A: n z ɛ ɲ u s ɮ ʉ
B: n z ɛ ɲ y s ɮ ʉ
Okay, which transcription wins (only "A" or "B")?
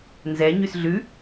B